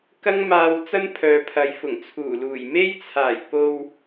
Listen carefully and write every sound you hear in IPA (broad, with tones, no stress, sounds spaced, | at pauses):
k ɐ˥ ŋ m aː˧ w t͡s ɐ˥ n pʰ œː˨ pʰ ɐ˨˧ j f ʊ˨˩ ŋ t͡sʰ uː˨˩ l uː˨˩ j m e˥ j t͡sʰ aː˨˩ j p o˧ w